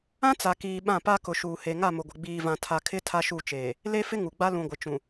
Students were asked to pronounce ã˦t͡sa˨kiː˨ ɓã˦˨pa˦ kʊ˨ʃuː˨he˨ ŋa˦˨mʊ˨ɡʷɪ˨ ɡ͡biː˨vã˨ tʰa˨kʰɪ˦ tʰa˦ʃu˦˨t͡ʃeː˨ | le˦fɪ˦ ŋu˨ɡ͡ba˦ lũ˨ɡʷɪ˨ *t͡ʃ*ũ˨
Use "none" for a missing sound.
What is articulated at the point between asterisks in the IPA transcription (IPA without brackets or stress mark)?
t͡ʃ